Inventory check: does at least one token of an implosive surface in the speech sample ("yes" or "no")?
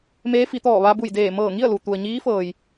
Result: no